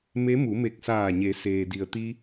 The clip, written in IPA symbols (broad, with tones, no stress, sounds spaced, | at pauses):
m e˧˥ m u˩˧ m e˧˩ k̚ s aː˧˩ ɲ e˩˧ s eː˩ d i˩ ə̯ t̪ i˧